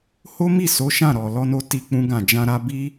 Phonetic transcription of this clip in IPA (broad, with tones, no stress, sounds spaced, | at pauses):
h o˦ m i˦˨ s o˨˦ ʃ ã˦˨ ɾ ɔ˨ l ɔ˧ n o˧ t i˦ k͡p ũ˦ ɡ ã˦˨ d͡ʒ ã˧ ɾ a˧ b i˦